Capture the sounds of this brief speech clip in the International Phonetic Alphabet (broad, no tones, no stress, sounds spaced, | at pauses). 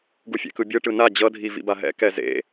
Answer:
ɡ u fʲ ḛ k ɯ bʲ ɯ ʈ ɯ n a d͡ʑ ʌ dʱ i v ḭ b a ɦ ɛ̰ k ɛ z ḛ